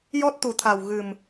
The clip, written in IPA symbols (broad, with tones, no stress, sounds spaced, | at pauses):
j ɔ˦˥ t̚ t̪ u˨˩ t̪ʰ a˨˩ w ɣ ɨ˨˩ m